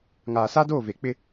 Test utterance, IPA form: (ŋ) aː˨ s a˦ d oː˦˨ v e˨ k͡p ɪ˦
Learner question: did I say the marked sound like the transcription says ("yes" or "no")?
yes